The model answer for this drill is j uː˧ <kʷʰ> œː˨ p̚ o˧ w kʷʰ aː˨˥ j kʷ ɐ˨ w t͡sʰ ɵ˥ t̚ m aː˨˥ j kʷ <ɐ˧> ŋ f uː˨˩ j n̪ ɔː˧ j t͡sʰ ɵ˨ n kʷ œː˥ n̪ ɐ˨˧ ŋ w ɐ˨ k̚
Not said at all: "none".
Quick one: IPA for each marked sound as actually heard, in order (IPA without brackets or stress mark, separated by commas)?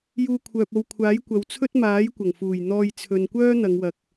kʷʰ, ɐ˨˩